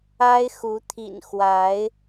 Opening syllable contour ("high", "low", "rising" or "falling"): high